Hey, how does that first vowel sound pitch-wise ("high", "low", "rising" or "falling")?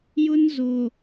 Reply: high